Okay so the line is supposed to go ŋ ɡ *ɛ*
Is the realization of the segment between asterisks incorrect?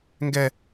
no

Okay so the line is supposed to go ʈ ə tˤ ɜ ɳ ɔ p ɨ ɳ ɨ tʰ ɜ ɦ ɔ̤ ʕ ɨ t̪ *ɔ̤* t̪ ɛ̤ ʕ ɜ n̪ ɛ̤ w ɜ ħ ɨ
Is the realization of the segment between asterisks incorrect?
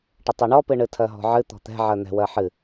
no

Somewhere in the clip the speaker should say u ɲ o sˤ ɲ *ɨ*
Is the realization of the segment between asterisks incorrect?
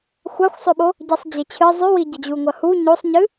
no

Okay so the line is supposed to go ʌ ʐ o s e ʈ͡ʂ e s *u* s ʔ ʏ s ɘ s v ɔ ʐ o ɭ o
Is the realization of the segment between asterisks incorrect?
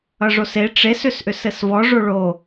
yes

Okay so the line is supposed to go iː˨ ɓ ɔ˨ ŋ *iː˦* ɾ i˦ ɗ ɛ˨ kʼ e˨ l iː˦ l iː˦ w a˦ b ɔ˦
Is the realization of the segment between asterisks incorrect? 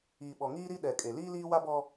no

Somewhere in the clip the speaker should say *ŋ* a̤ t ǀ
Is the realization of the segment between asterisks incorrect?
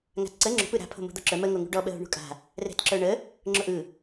no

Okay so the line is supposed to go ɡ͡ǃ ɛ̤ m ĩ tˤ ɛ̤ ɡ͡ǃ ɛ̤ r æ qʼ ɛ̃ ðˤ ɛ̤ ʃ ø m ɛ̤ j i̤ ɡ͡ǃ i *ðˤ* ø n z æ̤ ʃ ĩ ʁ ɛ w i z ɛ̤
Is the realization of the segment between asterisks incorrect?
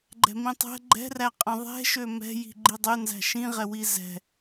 yes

